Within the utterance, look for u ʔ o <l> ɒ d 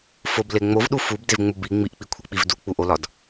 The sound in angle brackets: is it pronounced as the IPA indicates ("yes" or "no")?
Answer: yes